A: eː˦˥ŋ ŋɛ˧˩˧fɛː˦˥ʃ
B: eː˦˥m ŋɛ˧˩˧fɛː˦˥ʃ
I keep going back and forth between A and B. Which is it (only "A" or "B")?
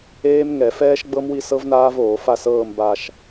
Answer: B